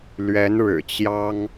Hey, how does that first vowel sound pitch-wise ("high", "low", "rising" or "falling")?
rising